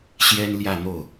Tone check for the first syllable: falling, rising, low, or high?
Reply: high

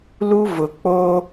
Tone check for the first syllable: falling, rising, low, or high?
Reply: high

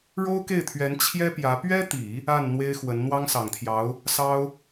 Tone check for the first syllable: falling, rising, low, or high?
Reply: high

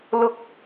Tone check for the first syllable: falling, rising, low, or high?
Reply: high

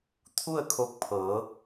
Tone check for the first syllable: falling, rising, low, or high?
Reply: falling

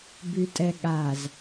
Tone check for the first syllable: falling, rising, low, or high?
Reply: low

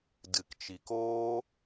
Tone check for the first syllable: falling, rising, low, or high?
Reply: low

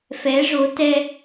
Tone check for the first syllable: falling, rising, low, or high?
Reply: rising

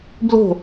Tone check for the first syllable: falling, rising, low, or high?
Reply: falling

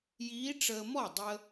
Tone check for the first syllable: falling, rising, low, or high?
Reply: rising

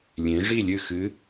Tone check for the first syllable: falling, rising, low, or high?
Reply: rising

